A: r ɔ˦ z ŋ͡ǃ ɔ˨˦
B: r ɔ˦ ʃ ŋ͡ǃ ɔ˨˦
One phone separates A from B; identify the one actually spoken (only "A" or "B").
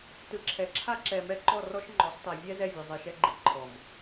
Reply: B